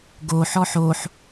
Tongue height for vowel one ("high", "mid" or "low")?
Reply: mid